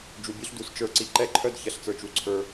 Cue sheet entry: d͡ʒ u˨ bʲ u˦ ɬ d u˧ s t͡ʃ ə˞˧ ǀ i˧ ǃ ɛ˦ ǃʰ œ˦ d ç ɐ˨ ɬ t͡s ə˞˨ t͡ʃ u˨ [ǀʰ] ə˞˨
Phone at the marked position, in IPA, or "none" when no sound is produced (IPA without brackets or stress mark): ǀʰ